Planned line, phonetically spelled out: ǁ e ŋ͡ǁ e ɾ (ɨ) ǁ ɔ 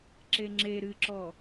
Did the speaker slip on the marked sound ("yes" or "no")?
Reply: no